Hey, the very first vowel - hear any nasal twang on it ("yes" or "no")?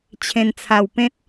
yes